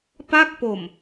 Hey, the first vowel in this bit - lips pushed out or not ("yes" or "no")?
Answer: no